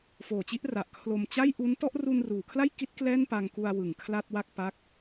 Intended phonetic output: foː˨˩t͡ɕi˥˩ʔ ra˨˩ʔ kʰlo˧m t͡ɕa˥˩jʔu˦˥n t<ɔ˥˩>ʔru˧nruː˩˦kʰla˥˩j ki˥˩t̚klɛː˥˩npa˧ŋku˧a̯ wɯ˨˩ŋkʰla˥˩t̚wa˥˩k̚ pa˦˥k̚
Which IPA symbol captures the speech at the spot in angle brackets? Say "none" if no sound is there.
ɔ˥˩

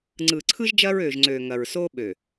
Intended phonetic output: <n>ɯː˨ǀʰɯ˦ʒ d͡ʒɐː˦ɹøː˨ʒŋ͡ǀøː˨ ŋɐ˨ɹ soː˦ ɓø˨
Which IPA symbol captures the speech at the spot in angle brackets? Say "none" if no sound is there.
ŋ͡ǀ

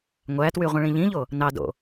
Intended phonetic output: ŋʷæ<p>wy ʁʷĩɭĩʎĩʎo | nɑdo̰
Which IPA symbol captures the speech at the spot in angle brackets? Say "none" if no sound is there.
t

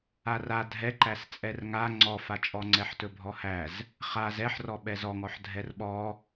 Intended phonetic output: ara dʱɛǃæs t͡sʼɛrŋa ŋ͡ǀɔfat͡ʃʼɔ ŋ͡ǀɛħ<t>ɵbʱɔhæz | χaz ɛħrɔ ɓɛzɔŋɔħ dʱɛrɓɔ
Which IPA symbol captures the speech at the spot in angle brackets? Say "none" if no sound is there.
t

